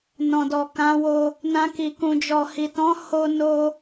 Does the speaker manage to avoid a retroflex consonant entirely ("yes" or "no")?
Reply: yes